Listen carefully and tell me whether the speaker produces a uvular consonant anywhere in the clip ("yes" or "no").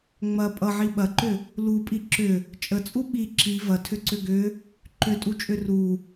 no